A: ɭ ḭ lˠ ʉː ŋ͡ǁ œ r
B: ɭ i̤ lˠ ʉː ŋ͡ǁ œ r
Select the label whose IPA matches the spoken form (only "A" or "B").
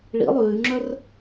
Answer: A